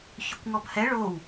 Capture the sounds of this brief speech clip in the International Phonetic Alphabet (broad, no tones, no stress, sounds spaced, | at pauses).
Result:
ç ʏ kʷ ŋ ɔ b h ɛ ɭ o w